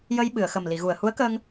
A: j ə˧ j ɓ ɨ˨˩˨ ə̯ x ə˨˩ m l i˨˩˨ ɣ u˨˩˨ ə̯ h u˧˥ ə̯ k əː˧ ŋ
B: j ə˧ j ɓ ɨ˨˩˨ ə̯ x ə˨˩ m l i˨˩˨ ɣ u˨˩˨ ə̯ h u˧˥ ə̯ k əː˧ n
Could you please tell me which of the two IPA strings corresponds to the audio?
A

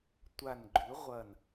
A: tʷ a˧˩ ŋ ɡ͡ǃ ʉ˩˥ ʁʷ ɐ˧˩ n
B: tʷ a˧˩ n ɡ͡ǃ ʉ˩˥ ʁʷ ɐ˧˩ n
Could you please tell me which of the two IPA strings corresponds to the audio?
B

